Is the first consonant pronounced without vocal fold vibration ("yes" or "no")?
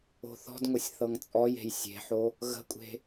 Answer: yes